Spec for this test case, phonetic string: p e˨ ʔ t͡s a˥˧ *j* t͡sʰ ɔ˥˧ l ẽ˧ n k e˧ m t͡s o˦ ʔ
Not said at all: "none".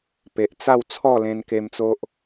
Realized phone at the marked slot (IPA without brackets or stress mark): w